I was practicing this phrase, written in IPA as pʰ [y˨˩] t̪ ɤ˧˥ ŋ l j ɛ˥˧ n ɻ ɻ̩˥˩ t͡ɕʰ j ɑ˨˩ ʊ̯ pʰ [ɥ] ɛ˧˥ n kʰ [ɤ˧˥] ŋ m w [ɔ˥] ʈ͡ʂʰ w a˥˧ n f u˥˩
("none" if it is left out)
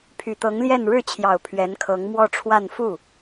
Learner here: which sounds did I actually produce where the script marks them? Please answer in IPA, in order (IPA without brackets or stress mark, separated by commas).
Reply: y˨˩, ɥ, ɤ˧˥, ɔ˥˧